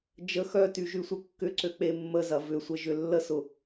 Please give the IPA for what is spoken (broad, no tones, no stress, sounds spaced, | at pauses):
d͡ʒ ə x œ t y ʒ y sʷ œ kː ʏ ǀ ø k͡p e mː ə z ɐ v ʏ sʷ ə ʒ ʏ lː ə s ʊ